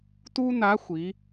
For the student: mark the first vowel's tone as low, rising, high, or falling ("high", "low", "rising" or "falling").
high